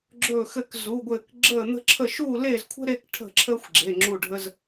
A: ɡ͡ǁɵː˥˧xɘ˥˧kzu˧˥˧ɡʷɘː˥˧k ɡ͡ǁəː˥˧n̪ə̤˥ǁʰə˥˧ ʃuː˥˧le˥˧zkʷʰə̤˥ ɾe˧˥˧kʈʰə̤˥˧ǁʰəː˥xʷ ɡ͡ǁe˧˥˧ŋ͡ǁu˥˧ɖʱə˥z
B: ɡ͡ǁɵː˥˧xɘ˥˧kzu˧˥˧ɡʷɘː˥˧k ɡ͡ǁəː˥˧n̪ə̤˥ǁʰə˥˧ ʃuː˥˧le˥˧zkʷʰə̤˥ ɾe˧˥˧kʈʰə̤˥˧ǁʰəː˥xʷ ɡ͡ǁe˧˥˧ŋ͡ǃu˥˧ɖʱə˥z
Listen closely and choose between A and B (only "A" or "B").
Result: A